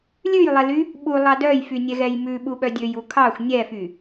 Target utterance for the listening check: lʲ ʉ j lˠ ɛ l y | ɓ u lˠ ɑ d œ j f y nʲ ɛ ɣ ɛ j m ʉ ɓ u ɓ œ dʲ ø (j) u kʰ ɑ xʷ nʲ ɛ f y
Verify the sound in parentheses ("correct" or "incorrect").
correct